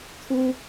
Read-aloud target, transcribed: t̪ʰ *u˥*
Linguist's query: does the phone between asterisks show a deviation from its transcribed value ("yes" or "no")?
no